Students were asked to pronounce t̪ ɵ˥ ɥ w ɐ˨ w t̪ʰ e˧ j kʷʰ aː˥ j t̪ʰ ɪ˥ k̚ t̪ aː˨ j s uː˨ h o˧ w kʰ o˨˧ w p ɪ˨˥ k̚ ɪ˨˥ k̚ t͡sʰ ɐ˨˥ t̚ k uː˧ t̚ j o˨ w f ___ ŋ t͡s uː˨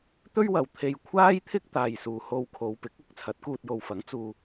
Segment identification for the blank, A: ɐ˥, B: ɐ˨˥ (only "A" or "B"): B